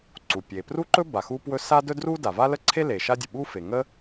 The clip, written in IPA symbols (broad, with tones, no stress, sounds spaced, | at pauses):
ǀ u˩ pʲ e˩ p r u˥ ǃ ɵ˥ b a˩ x u˥ p w ɵ˥ s a˥ d ɵ˥ d r u˥ d a˩ v a˥ l ə˥ ǀʰ e˥ l e˩ ʃ a˥ dʲ ə˩ ɓ u˥ f e˩ ŋ ə˥